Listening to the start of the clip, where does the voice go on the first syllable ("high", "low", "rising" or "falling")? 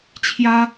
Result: high